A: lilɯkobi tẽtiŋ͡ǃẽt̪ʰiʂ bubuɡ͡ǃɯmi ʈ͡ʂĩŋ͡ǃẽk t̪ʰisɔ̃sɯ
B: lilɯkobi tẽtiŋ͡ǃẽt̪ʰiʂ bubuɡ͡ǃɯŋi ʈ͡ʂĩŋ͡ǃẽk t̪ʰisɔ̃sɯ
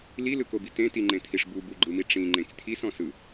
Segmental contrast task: A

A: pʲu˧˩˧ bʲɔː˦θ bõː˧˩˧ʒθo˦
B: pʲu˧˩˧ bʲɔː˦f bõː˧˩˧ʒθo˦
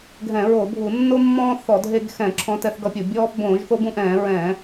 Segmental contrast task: B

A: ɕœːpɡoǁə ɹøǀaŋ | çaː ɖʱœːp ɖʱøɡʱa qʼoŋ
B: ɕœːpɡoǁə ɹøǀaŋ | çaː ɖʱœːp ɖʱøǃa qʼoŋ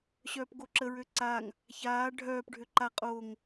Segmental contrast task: B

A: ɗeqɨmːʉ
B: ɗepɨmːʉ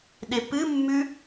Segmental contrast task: B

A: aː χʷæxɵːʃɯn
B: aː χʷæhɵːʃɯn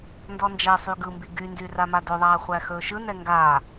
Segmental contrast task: A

